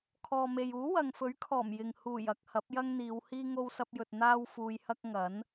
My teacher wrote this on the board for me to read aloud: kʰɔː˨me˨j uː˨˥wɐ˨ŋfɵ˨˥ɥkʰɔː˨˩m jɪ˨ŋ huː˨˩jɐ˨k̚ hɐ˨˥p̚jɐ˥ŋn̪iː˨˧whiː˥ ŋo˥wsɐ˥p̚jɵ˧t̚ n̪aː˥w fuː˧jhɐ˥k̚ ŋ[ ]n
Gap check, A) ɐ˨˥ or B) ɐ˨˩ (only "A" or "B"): A